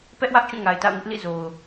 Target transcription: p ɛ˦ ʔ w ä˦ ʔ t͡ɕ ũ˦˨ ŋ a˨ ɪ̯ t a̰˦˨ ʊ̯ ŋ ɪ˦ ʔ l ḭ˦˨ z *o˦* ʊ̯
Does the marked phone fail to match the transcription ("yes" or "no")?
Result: yes